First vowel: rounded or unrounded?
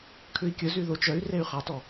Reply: rounded